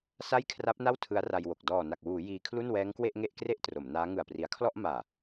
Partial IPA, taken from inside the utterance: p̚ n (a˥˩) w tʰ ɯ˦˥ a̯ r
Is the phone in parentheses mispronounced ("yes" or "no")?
no